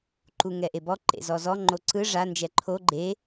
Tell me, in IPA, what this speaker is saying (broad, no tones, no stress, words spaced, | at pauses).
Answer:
ǃuŋɛʔebɔ ǃḛzɔzɔ ŋ͡ǃoǀɯ ʐa nd͡ʒɛǃʰo ɡ͡ǃe